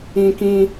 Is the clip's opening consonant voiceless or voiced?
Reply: voiceless